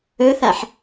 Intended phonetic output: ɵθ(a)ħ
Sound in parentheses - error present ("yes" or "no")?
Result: no